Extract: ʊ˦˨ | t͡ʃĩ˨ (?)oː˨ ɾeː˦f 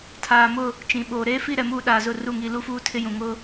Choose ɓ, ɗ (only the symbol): ɓ